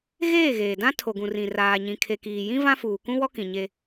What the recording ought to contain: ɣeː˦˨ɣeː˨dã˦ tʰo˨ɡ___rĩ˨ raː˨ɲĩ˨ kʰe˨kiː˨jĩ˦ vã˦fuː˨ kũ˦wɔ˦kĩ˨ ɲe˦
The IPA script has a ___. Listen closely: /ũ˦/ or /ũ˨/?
ũ˨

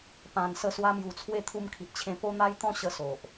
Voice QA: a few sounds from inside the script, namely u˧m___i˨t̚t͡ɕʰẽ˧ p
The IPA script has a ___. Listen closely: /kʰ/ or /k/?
kʰ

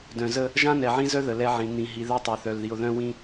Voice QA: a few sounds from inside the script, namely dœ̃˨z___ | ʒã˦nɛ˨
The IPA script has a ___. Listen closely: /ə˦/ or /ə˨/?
ə˦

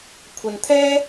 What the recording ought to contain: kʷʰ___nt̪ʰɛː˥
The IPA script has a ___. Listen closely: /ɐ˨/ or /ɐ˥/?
ɐ˨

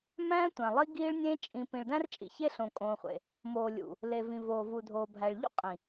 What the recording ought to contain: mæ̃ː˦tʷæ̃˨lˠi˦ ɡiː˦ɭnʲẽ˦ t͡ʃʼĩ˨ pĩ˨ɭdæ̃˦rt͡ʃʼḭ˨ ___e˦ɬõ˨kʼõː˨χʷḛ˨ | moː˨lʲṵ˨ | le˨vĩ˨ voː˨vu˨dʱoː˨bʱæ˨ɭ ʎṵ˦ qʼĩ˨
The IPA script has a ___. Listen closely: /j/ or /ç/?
ç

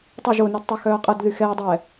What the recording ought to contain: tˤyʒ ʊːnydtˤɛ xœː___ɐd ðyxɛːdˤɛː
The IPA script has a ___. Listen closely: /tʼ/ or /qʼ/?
qʼ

